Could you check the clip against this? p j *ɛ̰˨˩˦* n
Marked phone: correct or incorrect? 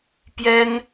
incorrect